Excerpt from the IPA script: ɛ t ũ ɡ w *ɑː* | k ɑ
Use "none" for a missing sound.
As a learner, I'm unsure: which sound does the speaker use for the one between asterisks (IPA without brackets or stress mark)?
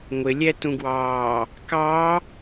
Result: ɑː